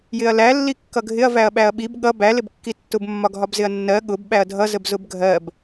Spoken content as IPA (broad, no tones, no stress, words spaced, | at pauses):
jɪɐ̯læ lːikːʌɡʱɪɐ̯ væɐ̯ɓæɐ̯ɓib ɠʌ bæ lɪbkːitːʊb mːɒɡʱɒbzɪɐ̯nːɜ ɠʊb ɓæɐ̯dʱʌ zəbzʊbɡʱɜb